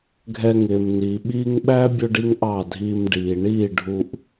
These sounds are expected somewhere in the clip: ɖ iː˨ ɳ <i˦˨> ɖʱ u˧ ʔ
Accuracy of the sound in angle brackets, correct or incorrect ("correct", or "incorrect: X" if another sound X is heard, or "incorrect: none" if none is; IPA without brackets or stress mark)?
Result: correct